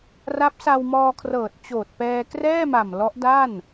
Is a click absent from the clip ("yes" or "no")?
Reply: yes